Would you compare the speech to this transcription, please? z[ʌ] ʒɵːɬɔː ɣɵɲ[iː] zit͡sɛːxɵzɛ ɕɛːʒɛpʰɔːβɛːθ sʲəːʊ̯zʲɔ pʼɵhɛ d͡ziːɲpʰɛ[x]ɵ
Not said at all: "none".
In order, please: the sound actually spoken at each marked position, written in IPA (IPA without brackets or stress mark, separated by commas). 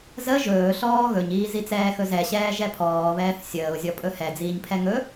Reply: ə, iː, ŋ